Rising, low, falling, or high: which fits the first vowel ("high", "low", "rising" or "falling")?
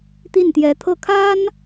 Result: falling